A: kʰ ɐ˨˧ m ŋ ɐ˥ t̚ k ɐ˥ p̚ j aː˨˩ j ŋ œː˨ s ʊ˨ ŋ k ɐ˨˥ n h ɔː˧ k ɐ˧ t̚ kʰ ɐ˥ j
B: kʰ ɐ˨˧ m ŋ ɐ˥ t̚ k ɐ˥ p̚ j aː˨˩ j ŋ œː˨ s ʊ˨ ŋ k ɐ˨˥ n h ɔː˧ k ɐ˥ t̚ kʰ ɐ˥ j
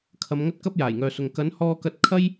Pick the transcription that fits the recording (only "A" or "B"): A